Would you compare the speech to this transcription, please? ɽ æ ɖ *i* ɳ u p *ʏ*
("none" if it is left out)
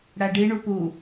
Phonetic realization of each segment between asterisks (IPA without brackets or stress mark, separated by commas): i, u